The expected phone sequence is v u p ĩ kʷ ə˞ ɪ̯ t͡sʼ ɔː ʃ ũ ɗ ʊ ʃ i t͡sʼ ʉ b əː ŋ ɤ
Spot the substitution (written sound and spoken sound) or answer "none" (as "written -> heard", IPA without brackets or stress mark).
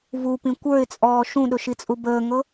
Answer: ʉ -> u